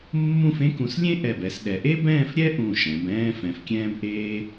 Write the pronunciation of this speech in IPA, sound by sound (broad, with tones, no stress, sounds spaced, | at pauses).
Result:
mː ũ˥˧ f ẽ˥ k ũ˧ s lʲ ẽ˥ ʔ ɛ˧˩ b ɛ˧ s ɗ ɛ˧ ʔ e˥ b ɛ̃ː˥˧ f ɾʲ ɛ˥ ʔ ũ˧˩ ʃ ɛ̃˩˧ b ɛ̃ː˥ f ɛ̃˧ f kʲ ɛ̃ː˥ b ʔ eː˥